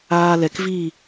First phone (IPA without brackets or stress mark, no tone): aː